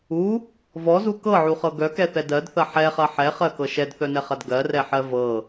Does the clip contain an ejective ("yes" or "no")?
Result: no